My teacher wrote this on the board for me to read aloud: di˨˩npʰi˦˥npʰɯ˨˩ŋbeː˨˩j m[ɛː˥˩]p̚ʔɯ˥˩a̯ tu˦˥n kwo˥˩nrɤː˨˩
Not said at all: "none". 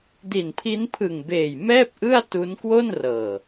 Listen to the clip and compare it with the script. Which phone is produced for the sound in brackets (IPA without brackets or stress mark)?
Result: ɛː˥˩